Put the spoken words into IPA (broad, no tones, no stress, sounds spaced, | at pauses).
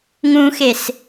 ŋ ũ x e s